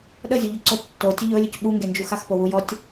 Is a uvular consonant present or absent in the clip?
absent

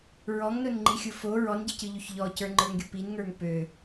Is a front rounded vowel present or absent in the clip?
present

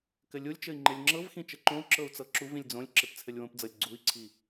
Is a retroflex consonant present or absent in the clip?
absent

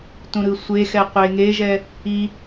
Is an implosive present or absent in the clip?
absent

